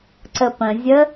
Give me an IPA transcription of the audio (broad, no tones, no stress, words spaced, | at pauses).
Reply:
ǀəpə̃zʲə